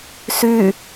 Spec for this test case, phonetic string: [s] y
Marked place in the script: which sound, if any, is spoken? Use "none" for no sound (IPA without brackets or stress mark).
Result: s